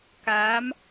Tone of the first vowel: rising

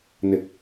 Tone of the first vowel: low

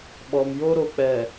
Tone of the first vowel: low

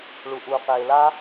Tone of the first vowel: low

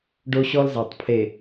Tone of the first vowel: high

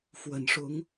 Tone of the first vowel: low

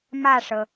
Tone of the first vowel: falling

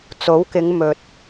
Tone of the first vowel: rising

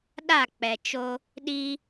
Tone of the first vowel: falling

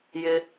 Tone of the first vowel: low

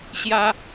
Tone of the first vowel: high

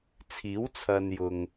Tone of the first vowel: rising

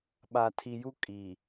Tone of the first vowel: low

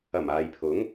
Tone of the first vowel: low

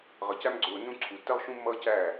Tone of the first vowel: rising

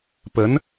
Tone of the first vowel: rising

